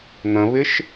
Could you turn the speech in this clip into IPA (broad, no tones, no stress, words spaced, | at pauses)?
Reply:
n̪ə̃βɪʃ